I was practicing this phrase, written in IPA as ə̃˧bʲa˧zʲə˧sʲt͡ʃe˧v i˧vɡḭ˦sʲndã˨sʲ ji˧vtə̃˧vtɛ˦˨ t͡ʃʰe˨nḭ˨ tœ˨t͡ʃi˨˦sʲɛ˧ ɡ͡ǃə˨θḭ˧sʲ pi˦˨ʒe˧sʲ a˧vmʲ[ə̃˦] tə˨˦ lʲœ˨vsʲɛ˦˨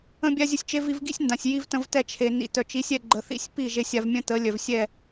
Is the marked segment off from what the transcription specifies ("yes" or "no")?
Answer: no